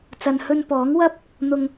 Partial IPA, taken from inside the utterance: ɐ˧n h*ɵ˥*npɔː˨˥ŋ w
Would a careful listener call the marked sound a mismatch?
yes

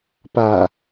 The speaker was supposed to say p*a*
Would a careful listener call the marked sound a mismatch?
no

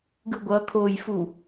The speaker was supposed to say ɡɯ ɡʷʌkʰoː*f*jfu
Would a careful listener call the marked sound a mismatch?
yes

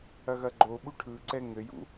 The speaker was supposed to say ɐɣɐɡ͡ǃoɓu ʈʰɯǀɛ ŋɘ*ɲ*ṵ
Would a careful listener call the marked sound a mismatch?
yes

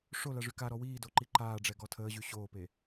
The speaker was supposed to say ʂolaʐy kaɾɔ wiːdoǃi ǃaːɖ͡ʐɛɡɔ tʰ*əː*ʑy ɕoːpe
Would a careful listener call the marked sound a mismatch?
no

